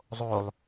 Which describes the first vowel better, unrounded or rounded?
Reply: rounded